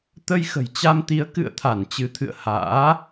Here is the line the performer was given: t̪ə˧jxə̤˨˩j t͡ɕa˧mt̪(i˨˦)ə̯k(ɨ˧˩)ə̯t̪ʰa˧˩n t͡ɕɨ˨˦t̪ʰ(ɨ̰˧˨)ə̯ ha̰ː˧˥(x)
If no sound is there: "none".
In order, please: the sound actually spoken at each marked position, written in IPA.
i˨˦, ɨ̰˧˨, ɨ̰˧˨, none

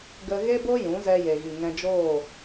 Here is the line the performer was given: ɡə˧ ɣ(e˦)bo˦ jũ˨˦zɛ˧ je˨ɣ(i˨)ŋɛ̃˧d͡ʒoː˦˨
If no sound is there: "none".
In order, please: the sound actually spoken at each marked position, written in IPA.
e˦, i˨

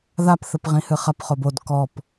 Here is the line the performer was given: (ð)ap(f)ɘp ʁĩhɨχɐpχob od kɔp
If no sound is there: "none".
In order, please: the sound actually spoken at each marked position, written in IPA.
ð, θ

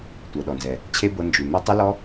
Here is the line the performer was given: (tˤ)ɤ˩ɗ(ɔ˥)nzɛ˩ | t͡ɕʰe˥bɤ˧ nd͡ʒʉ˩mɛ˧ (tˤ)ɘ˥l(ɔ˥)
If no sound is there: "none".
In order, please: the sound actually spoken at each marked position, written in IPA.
tʷ, ɔ˩, tˤ, ɔ˥

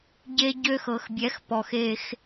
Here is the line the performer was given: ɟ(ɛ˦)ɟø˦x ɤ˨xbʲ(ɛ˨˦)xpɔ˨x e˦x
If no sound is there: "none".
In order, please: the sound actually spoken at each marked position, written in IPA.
e˦, ɛ˨˦

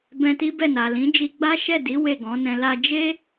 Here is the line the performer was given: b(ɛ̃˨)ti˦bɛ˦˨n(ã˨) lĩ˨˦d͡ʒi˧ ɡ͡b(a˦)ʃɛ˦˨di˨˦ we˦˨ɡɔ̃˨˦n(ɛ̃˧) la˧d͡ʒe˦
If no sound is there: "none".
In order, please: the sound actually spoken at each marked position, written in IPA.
ɛ̃˧, a˨, a˦, ɛ̃˧

